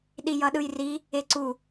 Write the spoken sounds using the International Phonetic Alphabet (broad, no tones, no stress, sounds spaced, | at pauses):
ɗ i j ʌ ɗ ɯ j r i | e ǀ u